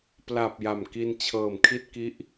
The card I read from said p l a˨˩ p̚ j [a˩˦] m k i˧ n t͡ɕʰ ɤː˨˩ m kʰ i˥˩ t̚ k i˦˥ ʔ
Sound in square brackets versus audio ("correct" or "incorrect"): incorrect